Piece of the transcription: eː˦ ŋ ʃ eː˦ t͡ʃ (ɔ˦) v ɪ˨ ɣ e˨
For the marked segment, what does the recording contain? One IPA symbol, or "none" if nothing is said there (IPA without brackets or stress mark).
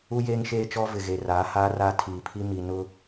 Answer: ɔ˦